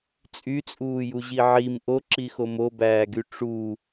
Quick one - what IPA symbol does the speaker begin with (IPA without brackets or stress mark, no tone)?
t͡sʼ